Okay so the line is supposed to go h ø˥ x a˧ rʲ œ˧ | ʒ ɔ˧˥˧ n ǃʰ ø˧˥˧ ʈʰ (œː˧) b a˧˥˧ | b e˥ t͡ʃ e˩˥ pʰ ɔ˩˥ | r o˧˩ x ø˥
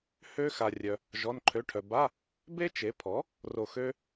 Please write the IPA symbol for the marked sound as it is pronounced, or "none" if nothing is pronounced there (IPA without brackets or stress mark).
œ˧